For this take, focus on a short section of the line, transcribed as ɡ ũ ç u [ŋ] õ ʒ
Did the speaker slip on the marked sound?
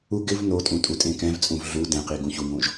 no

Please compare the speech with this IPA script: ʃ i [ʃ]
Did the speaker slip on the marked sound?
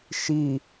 yes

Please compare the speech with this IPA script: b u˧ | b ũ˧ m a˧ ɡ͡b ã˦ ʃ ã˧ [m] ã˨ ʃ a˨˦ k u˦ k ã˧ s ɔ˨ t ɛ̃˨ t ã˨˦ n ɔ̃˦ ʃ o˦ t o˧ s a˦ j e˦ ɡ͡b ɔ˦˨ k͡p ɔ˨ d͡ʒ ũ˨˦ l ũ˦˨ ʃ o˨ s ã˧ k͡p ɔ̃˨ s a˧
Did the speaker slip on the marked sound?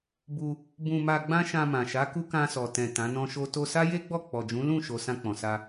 no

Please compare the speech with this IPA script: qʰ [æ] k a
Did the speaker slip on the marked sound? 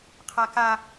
yes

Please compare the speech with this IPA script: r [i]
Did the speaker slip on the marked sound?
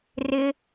yes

